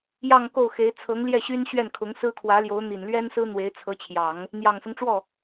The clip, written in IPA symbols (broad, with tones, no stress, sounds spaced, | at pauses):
j ɑ˥˧ ŋ k o˥˩ ʊ̯ x e˧˥ ɪ̯ t͡sʰ ɤ˧˥ ŋ l j ɛ˥˩ ɕ y˥ n ɕ ɥ ɛ˥˩ n kʰ ʊ˧˥ ŋ s ɹ̩˥ kʰ w ä˧˥ l j o˧˥ ʊ̯ n̪ i˨˩ n l ɥ ɛ˥ n s ɹ̩˥ n̪ w e˧˥ ɪ̯ t͡sʰ ɤ˧˥ t͡ɕʰ j ɑ˨˩˦ ŋ | n̪ j ɑ˨˩ ŋ s ʊ˦ ŋ ʈ͡ʂ w ɔ˥˩